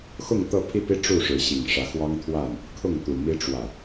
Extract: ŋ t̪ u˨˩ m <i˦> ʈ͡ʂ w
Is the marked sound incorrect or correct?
correct